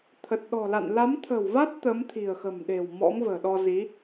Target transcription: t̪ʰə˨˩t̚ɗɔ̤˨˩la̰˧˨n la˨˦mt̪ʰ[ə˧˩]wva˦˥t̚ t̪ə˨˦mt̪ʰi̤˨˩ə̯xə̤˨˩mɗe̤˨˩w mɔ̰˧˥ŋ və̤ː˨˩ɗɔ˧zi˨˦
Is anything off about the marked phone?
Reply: yes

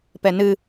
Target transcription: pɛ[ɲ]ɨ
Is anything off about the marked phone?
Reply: yes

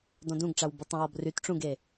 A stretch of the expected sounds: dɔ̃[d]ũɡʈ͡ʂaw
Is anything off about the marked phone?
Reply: no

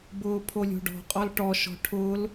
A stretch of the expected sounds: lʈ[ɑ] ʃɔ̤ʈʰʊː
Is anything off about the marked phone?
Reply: yes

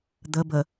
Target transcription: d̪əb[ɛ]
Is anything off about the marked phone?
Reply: yes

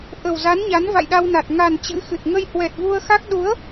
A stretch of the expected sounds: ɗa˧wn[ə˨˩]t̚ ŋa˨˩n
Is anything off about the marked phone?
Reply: yes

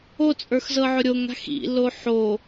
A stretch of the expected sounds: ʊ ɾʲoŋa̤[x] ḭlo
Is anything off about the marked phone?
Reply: no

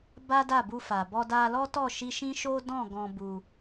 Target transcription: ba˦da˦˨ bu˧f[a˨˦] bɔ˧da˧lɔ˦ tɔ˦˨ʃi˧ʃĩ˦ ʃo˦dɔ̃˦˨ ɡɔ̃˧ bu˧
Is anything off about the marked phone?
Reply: yes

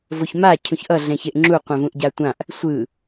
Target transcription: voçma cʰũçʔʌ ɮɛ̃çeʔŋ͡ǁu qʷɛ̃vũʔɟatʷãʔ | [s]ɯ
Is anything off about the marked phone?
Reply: yes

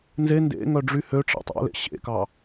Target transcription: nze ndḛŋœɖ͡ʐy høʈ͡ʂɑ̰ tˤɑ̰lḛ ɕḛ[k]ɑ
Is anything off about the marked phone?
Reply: no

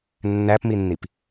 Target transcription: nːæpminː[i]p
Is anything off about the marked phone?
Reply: no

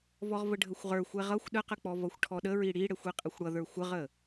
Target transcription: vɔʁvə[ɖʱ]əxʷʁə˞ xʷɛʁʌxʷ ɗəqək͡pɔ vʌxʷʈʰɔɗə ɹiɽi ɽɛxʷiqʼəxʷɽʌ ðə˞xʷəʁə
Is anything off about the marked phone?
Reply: no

